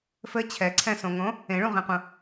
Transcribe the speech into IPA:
fɘ t͡ɕʰɛǀʰɛ̃sõŋõ | ẽɭũʁĩqũ

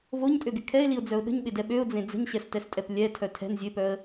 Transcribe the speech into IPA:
voɲtʼøɡɪ kʰɛɪ̯liʊ̯d͡zœʊ̯ ɗə̤ɲɓɪdɛ ɓøʊ̯d͡zẽ d͡zə̤ɲɕɛstɛstʼɛp lʲɛtʰœ tʰɛ̤n zʲøpœə̯

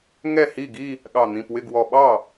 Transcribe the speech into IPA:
ŋɛ˥˩hi˥˩ɡi˥˧ | ɠɑ˧˩n̪ĩ˩˧˩pwɪ˥˩ɡwɔ˧˩ ɓɑ˥˩

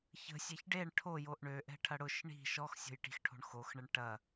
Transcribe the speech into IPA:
çə̤sʲɛç ɖeɳ ʈʰojoʔ ɳøʔɛ̤ʈʰɐ ɽʊʃ ɳi̤ ʃɔxsʲo̤jʈi̤xʈʰo̤ɳ xoxɳəɳ ʈɐ

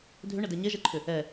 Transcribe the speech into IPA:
dʱʏɳədɛ ɲɛʒɛǃʰʏ | ɛ

